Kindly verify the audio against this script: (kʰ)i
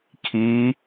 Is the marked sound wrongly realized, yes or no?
no